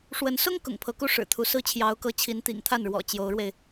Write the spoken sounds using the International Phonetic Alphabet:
ʂ w ə˧˥ n s ʊ˥ ŋ k ʊ̰˨˩ ŋ pʰ ɤ˧˥ k u˥˩ ʂ ɻ̩˨˩ t̪ʰ u˧˥ s ɹ̩˥ t͡ɕʰ j ɑ˧˥ ʊ̯ k ɤ˧˥ t͡ɕʰ i˧˥ n t̪ ḭ˨˩ ŋ t̪ʰ a˥˩ n ɻ w ɔ̰˨˩ t͡ɕ j o˧˥ ʊ̯ ɻ w e˧ ɪ̯

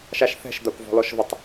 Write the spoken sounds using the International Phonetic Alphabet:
ʃ a ʃ θ ɛ̤ ʃ d̪ a kʷ v ɔ̤ l ɔ ʃ v ə tˤ

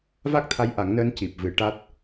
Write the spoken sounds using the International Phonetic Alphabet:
v a˦˥ k̚ t̪ʰ a˧˥ j ʔ a˨˩˦ ŋ n əː˧˥ n c i˨˩ p̚ v ɨ˨˩˦ ʈ a˦˥ t̚

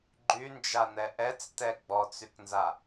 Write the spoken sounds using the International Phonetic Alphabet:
ɡ͡ǃ y n d͡ʒ a n̪ ɛ ʔ ɛ t͡s t ɛ ɡ͡b ɔ t͡s y k n z a

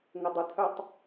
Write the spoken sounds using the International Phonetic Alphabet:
ŋ ʊ dˤ ʊ t̪ʰ œ tˤ

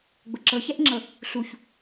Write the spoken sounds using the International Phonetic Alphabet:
ɡ͡b ʊ ǁ ɤ ç ɛ ʔ ŋ͡ǁ ɤ | ɬ u ç

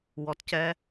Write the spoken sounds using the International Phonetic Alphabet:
w ɔ˨ t c ɛ˦

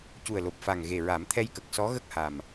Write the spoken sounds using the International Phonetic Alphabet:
c u˨˩ ə̯ l o˨˩ p̚ f a˨˩ ŋ ɣ e˨˩ ɹ a˨˩˦ m t̪ʰ ɛ˧ j k ə˨˩ k̚ s ɔ˧˥ ɣ ə˦˥ k̚ h a˨˩ m

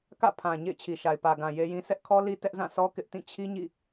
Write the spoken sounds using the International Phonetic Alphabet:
k ä̰˦˨ pʰ ã˨ ɲ ḛ˦˨ ɪ̯ t͡ɕʰ i˨ ʃ a˨ ɪ̯ p ä˨ ɡ ã˨ j e˦ j ĩ˦ sʰ ɛ˦ ʔ kʰ ɔ˦ l i˦ t ɛ˦ ʔ z ã˦˨ sʰ ɔ˦ k ɪ˦ ʔ t ĩ˦˨ t͡ɕʰ i˦ ɲ ḭ˦˨

